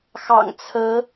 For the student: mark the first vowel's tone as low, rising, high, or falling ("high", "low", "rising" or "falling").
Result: low